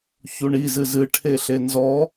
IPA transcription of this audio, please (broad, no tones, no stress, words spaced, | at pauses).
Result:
çuɳizɨ zɨʈʰe ɬenzɔ